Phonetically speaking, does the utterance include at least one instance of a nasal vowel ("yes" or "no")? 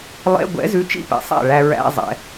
no